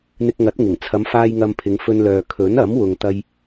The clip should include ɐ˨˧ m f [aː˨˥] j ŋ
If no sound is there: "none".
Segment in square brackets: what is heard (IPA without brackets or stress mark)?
aː˧